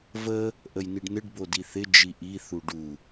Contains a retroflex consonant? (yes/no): yes